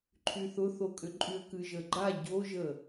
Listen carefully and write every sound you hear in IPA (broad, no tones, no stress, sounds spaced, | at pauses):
ǃʰ y θ ʊ θ o kʼ ʏ ǃʼ y ə̯ k ɨ ʒ ə ɡ͡ǃ a ɟ o ʒ ə